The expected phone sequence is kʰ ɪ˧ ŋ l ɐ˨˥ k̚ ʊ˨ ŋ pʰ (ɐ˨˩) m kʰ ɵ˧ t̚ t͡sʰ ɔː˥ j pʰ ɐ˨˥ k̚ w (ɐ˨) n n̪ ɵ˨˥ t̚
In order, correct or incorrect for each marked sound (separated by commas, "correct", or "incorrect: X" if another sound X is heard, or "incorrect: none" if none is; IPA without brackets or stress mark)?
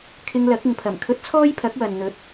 correct, correct